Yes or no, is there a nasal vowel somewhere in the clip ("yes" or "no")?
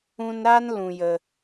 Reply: yes